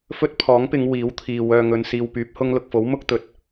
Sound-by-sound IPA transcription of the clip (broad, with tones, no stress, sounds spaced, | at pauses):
f ɵ˥ t̚ pʰ ɔː˨˥ ŋ p ɪ˨˧ ŋ w iː˨˥ w t̪ʰ iː˨ w œː˧ ŋ ɵ˧ n s iː˧ w p yː˨˥ p̚ h ʊ˥ ŋ l ʊ˨ k̚ f o˨˥ w m ʊ˥ k̚ t̪ ɵ˨˥ t̚